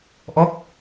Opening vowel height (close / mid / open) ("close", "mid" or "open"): mid